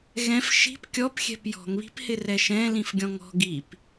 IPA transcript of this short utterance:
ɣ ɛ̃ f ʃ i̤ p kʲ ɔ p xʲ ɛ̤ p j ɔ̤ ŋ β i̤ p h ɪ r ɛ ʃ ɛ̃ l ĩ f ɡʲ ɔ̃ ŋ ɔ̤ ɡ i p

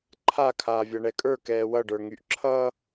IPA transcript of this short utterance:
ǃʰ a kʰ aː vʲ a ɳ ɛ kʼ ə˞ k ɛː w ʌ ɖ ə˞ ŋ y ʔ ǁʰ ʌː

